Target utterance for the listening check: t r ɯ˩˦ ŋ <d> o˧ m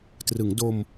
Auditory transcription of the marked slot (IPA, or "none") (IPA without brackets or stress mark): d